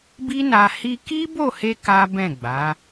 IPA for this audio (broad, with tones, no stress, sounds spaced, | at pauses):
b i˦ n a˧ h i˧ k i˦ b o˦˨ h e˧ k a˦ b ɛ̃˦˨ ɡ͡b a˨˦